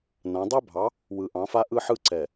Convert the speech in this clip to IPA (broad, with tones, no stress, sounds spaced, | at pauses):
n ã˨˦ dˤ ɛ˦ bʱ ɑ˨˦ | w ɯ˨ ʔ ɑ̃˨˦ f a˦ ʔ ɯ˦ ħ ɯ˦ ǀ ɛ˨